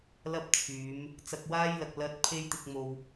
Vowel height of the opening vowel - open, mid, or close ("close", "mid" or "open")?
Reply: open